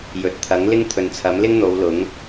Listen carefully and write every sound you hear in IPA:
jɵ˨˥t̚ t̪ʰɐ˨˥ŋlɪ˥ŋ t̪ʰɵ˨nt͡sʰɐ˨˥m lɪ˥ŋ n̪o˨˧wlʊ˨˥ŋ

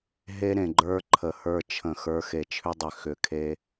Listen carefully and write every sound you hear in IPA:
ɦe˦ ɾẽ˨ɡ͡ǃə˞˦ǃʰə˨hə˞˦˨ t͡ʃʰə̃˨ xə˞˨˦xe˨t͡ʃʰʏ˦ dˤʏ˨ xʏ˨kʰe˧

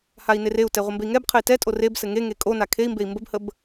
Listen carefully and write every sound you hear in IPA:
hai̯nereu̯tɛ ʁʷəmbei̯ŋɛbqʰɘi̯ tɛtʼor ebsɘ ŋeŋe kʼona kʰei̯mbei̯ mbəbhəb

